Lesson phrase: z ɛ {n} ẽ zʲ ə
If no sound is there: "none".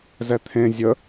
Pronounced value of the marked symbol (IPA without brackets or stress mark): t̪ʰ